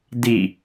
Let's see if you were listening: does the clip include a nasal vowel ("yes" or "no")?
no